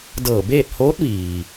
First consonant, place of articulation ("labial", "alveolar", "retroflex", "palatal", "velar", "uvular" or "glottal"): alveolar